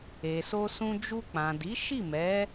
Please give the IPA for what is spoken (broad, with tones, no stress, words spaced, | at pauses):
e˨so˧sũ˧ d͡ʒu˧k͡pã˨di˨˦ ʃi˦˨mɛ˨˦